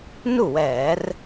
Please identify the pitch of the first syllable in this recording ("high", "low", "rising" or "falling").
falling